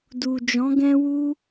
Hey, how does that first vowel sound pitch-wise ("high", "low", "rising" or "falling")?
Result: low